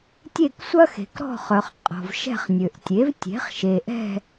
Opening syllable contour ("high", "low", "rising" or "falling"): falling